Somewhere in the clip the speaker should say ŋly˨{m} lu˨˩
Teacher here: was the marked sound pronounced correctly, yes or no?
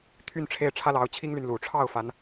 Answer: no